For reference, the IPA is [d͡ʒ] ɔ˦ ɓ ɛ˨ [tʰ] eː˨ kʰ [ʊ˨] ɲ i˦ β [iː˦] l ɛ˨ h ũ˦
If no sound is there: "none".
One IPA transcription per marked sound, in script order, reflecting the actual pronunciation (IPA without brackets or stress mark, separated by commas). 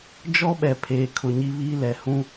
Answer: d͡ʒ, pʰ, ʊ˨, iː˦